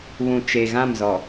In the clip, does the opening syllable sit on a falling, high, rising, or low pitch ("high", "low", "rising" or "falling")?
low